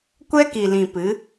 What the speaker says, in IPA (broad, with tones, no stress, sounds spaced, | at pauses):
kʷ ɛ˦ k i˨ l ĩ˨ p ɨ˨˦